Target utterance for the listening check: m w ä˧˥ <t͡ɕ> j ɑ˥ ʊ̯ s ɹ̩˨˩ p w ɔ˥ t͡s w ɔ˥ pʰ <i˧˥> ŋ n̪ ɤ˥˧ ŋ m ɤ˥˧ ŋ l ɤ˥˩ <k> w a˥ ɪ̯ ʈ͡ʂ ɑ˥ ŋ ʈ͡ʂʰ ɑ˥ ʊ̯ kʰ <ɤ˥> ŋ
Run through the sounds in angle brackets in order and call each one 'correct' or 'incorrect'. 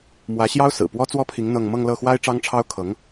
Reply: incorrect: ɕ, correct, incorrect: x, incorrect: ɤ˧˥

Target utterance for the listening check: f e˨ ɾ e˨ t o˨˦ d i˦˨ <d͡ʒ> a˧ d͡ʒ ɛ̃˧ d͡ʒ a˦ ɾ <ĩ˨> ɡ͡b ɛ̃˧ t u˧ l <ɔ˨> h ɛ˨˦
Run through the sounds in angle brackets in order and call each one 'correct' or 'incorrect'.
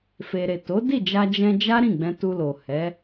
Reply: correct, incorrect: ĩ˦˨, incorrect: o˨

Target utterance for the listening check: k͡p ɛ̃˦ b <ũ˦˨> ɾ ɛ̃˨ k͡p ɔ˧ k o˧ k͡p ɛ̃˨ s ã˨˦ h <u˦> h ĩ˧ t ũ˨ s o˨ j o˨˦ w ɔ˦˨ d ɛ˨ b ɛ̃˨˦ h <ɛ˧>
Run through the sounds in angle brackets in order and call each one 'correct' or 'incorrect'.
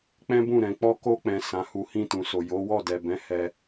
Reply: correct, incorrect: u˧, correct

